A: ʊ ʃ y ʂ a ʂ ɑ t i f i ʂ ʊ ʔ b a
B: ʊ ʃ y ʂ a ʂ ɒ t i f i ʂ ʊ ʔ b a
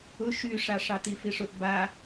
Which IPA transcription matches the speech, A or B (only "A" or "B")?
A